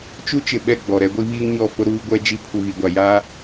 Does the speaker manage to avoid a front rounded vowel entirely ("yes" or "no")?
yes